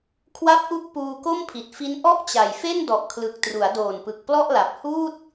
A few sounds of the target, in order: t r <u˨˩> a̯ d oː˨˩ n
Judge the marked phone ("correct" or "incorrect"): incorrect